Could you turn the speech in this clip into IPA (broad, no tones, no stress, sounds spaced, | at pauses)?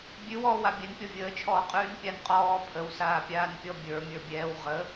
bʲ ʉ w ɔː w a bʲ ɛ n pʲ ɔ vʲ əː t͡ʃʰ ɔː qʼ ʉː n pʲ a n qʼ ɔː pʰ ə w s aː pʲ aː n pʲ ɔ bʲ ə˞ mʲ ə˞ bʲ ɛː w ʁ ə